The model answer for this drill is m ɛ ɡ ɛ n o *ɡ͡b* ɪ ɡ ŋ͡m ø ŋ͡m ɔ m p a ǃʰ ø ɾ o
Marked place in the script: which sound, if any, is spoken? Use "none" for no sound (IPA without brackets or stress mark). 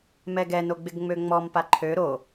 ɡ͡b